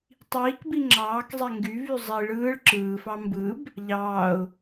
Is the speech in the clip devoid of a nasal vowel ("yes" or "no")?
yes